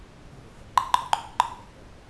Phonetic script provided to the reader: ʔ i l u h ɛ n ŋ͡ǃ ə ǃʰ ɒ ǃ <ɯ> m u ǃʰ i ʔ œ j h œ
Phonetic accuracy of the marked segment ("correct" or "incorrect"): incorrect